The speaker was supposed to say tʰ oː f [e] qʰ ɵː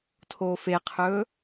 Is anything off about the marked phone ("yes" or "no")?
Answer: no